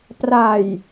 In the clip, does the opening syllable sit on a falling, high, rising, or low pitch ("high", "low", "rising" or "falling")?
low